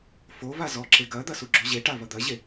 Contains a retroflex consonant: yes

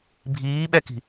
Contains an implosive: yes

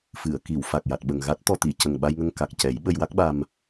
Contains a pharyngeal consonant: no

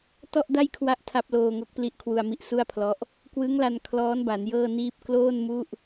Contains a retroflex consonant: no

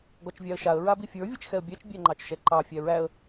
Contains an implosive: no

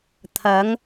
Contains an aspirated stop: yes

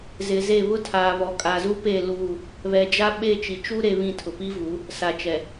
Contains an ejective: yes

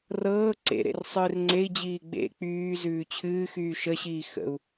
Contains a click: yes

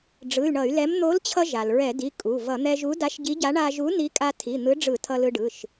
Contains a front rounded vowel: yes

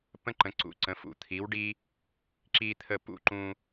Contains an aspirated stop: yes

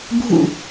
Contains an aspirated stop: no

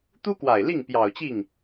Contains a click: no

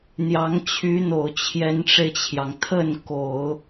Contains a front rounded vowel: yes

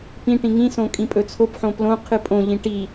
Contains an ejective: yes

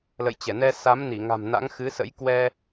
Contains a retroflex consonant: no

